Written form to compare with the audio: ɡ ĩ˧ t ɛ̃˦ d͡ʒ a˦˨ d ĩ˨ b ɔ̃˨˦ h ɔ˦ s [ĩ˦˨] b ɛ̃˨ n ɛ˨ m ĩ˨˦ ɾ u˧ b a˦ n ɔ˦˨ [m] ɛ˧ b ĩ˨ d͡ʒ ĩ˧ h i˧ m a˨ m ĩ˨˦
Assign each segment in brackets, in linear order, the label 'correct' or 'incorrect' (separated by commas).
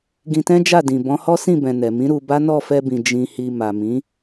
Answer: correct, incorrect